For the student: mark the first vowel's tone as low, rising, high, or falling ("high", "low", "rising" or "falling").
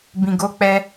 low